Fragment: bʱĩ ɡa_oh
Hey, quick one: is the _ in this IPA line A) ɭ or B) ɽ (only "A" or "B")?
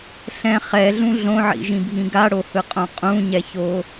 B